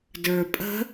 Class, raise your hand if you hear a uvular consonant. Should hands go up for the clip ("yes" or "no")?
no